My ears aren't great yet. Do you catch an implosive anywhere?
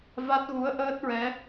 no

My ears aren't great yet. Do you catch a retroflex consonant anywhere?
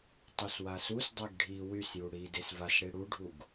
yes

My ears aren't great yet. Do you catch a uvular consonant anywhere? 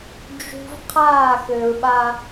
yes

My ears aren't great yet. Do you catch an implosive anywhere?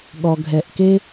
yes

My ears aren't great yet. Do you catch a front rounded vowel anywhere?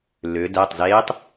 yes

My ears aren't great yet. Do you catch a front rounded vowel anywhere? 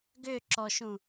yes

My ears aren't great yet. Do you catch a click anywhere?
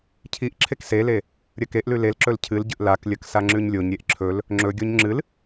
yes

